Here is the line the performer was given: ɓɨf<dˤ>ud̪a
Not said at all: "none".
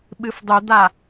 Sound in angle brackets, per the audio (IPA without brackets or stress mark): dˤ